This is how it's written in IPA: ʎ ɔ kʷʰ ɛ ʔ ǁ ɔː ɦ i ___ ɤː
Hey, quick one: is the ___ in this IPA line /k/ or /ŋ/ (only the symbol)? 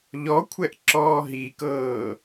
k